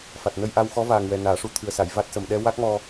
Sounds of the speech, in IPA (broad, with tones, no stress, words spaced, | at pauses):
fa˨˩t̚nə˧jʔa˧wxɔ˧˥ vaː˨˩ŋwɛ˨˩ naː˨˩˦ʂu˧˥ t̪ʰɨ˨˩ə̯sa˨˩˨j va˦˥t̚sə˨˩m ɗɛ˧ wa˦˥k̚mɔ˧